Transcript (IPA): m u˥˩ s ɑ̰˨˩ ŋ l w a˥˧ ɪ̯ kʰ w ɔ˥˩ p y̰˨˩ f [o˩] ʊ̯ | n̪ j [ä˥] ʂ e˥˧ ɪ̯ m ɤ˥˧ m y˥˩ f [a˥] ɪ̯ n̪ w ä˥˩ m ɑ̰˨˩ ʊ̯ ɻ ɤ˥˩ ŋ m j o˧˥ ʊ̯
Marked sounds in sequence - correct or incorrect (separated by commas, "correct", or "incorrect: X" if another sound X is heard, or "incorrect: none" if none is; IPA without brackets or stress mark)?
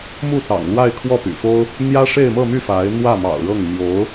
incorrect: o˥, correct, incorrect: a˧˥